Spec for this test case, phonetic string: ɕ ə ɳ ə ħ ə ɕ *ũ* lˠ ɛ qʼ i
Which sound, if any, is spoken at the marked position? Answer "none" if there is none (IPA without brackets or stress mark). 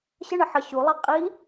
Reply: u